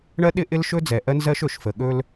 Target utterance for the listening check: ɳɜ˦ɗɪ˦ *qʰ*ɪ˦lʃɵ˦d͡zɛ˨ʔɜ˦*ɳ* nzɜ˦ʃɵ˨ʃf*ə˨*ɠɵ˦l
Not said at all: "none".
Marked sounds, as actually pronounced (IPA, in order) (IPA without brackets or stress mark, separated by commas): ʔ, none, ə˨